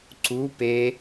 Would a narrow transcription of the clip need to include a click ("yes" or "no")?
yes